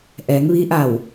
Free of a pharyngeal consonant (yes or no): yes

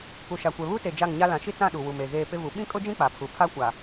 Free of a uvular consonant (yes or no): yes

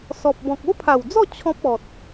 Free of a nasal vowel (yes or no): no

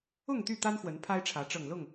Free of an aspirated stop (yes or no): no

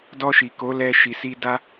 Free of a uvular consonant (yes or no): yes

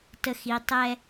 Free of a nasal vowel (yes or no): yes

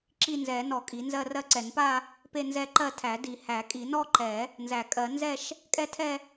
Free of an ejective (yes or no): no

